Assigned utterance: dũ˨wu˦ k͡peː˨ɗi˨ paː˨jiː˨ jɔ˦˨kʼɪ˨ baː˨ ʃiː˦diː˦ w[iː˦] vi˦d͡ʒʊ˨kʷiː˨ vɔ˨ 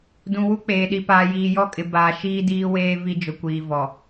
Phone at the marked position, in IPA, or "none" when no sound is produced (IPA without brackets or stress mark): eː˦